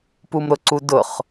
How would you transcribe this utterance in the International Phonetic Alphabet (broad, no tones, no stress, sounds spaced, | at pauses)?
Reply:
p u m ɾ ʊ ǀ u d ʊ χ